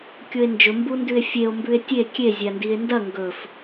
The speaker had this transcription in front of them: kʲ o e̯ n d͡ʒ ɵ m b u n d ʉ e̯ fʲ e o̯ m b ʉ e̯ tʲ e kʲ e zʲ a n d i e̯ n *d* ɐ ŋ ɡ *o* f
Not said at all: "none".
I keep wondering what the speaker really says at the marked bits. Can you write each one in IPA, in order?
d, ɵ

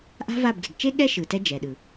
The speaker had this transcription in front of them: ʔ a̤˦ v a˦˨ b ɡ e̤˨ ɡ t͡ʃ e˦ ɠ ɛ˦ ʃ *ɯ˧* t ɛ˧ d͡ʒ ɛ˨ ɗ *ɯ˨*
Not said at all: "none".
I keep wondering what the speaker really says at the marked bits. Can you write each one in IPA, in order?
ɯ˨, ɯ˨

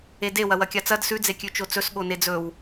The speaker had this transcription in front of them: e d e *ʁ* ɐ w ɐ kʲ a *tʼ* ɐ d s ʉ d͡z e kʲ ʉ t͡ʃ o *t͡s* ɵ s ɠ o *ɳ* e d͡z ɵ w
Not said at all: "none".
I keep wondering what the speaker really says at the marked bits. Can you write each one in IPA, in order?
w, t͡s, t͡s, n

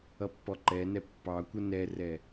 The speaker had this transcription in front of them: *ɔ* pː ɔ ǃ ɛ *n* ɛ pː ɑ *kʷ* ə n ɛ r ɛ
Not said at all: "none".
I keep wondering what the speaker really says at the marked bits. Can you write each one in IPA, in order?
ʌ, n, kʷ

